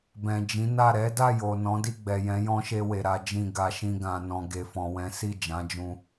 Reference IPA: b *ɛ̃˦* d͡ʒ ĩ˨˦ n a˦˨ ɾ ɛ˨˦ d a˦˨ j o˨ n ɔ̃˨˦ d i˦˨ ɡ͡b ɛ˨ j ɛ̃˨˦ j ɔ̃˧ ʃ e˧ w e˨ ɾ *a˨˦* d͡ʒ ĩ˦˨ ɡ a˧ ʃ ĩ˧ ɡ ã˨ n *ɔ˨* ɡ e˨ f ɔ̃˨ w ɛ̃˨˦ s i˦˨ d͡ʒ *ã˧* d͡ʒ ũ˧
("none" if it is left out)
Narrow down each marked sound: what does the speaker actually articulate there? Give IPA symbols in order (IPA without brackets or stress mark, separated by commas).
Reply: ɛ̃˨, a˨˦, ɔ̃˨, ã˨˦